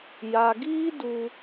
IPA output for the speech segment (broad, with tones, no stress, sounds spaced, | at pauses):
j a˨ ɡ iː˦ d u˧